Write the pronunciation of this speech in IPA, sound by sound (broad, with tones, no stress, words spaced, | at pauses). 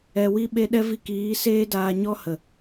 ɛ˧wi˦ ɓe˦ɗɛ˦ vi˧kiː˨˦ seː˦daː˧ɲɔ˦ hə˨